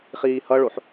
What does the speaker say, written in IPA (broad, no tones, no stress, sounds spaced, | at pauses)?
χ iː h ʌ ɭ o ħ